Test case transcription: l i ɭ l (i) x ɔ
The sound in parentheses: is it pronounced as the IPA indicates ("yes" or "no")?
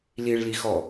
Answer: yes